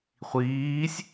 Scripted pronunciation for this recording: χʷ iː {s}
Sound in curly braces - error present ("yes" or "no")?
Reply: yes